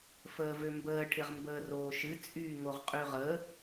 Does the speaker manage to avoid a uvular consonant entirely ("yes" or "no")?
no